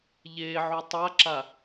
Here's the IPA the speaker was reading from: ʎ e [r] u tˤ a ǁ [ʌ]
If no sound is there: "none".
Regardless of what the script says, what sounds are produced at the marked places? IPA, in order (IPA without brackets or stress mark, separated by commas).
ʕ, a